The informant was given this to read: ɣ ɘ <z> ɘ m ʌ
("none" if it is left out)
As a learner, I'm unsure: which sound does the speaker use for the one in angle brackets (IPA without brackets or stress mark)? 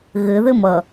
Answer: ð